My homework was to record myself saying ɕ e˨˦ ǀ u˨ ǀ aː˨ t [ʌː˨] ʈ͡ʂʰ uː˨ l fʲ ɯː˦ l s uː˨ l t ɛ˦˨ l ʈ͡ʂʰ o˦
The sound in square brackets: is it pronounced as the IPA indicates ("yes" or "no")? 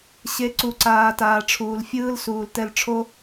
no